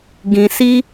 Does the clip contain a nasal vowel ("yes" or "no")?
yes